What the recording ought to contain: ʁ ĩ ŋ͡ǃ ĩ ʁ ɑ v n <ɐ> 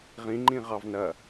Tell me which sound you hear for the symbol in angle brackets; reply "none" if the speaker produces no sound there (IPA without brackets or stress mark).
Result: ɐ